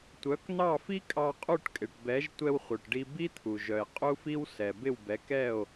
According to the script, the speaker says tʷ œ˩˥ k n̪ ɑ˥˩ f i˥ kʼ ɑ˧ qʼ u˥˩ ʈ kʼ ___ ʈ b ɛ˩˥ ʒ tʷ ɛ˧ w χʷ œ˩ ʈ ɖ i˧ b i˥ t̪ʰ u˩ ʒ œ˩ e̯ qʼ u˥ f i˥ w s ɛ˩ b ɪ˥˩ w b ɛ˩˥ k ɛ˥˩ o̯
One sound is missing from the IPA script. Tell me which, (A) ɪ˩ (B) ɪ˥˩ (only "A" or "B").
A